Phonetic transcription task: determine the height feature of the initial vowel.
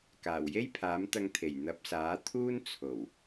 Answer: low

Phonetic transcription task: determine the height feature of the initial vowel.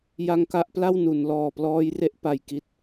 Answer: low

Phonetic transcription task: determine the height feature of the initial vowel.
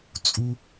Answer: high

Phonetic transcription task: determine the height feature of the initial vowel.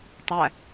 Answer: low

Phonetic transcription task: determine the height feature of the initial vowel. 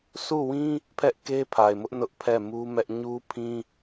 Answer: high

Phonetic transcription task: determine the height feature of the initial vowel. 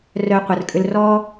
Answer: mid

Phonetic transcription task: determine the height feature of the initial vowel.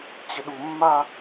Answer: mid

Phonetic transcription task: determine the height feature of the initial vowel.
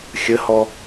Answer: mid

